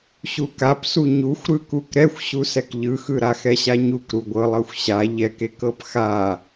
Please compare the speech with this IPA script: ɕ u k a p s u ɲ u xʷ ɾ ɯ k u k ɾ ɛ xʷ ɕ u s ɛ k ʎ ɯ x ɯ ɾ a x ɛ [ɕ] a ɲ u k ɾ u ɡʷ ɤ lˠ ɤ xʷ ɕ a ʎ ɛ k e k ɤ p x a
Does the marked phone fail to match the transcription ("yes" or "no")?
no